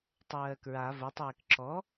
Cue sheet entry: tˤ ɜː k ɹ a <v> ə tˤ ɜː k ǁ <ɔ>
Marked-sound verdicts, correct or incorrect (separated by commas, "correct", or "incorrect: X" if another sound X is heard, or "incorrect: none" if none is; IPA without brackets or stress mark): correct, correct